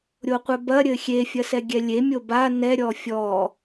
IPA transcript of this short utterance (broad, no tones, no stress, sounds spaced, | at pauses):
ɾʲ o qʷ ɛ b ɐ ɾʲ ɘ xʲ e fʲ ɐ s ɛ ɡʲ ɛ lʲ e mʲ o b a n ɛ ɾʲ ɔ fʲ ɔ